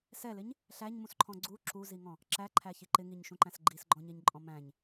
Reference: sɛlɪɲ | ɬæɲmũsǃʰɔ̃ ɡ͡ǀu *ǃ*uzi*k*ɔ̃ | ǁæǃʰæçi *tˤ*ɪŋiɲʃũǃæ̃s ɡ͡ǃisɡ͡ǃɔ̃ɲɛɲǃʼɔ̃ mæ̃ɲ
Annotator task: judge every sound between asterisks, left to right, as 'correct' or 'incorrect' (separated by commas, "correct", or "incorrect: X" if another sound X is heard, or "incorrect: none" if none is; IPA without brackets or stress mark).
incorrect: ǁ, incorrect: ŋ, incorrect: ǃ